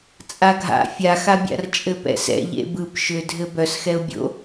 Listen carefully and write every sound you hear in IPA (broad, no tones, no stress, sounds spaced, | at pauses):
t͡sʼ a ɡʱ a̰ fʲ a x a bʲ a̰ r t͡ʃʼ ɘ p ɛ̰ s ɛ̰ ʎ ḛ b ɯ p ʃ ʏ dʱ ɘ b œ s x ɛ ʊ̯ bʲ o̰